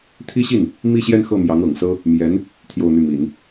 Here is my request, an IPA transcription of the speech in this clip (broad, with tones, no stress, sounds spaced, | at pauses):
t̪ʰ i˥ ɕ i˥˩ n | m i˥˧ ɕ j ɛ˥˧ n x ɤ˥˩ m j ɑ˧˥ ŋ ɤ˨˩ ŋ s ɤ˥ | m j ɛ˧˥ n | t̪ʰ j o˥˧ ʊ̯ n̪ y˥˩ m i˨˩˦ n